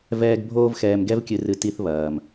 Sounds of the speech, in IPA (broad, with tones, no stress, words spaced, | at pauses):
vɛː˦ɡ bʱoː˦vxɛː˧mɡɛ˦vkʲɨ˧ rɨ˦ti˦θβɐː˨m